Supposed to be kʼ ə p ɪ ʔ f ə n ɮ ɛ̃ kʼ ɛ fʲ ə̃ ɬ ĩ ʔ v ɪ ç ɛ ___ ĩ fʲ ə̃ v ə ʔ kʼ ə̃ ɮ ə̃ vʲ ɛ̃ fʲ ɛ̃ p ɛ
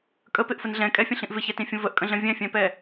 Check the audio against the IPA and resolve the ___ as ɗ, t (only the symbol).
t